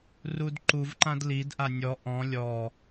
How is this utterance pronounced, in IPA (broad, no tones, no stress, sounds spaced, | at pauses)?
r u d ǃ u v ǃ ã d l i d ʔ a nʲ ɔ ʔ ɔ̃ lʲ ɔ